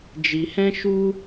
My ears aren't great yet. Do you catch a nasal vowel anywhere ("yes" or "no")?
yes